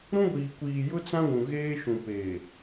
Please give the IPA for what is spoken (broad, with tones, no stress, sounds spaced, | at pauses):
ɾ ũ˦ ɡʷ iː˨ kʷ iː˨ j ʊ˦ t͡s ã˦ ɡʷ ũ˨ ɣ eː˦ ʃ ũ˨ p eː˨